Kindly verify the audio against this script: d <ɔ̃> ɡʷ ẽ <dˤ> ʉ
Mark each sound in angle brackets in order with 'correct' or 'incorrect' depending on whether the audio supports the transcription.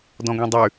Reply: correct, correct

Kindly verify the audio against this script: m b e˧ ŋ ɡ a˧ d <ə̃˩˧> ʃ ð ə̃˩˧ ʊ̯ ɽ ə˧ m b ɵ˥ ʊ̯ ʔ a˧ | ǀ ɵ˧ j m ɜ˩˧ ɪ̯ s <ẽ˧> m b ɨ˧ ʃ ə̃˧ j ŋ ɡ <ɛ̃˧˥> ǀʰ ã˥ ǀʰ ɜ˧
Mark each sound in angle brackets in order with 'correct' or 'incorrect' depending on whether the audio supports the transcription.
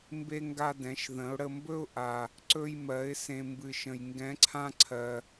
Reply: incorrect: ɛ̃˩˧, correct, correct

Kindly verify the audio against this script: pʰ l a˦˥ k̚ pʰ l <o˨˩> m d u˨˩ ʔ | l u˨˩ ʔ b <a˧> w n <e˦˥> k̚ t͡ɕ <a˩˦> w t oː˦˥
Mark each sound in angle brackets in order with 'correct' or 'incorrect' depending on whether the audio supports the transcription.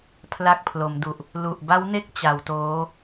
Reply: incorrect: o˩˦, incorrect: a˦˥, correct, correct

